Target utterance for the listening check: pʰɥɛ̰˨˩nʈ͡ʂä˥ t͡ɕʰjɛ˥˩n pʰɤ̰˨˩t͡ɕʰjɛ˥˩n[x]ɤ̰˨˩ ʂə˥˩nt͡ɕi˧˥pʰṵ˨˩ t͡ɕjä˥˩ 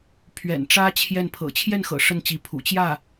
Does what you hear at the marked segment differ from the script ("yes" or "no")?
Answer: no